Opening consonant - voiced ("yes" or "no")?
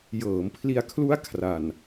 yes